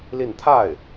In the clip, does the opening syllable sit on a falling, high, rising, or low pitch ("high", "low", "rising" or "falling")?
falling